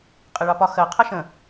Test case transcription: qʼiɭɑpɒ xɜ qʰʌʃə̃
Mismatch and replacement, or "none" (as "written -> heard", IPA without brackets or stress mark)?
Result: none